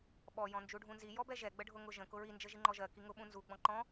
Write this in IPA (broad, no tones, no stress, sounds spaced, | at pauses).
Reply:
ɓ ɔ j ɔ̃ n d͡ʒ u ɖʱ ũ n z i j ɔ b ɛ ʒ ɛ ɡ͡b ə ɖʱ ʊ ŋ ʊ ʒ ə̃ k ʊ ɹ i n d͡ʒ ə ʒ i ŋ͡ǃ ɔ ʒ ɜ k i ŋ ʊ ɓ ũ n z u ɡ͡b ɔ̃ ǃ ɔ̃